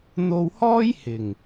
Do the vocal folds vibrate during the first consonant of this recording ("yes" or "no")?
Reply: yes